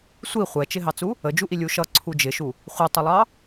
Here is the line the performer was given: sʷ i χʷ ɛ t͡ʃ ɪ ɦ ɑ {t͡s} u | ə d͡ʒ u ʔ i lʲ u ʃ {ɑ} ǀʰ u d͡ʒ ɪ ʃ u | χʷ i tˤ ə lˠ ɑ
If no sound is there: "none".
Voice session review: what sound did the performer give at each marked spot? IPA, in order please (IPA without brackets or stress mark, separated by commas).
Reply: t͡s, ʌ